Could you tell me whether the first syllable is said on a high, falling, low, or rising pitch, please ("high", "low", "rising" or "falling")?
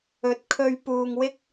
rising